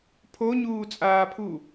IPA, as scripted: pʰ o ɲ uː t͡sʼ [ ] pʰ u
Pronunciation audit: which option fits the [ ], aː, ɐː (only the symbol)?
aː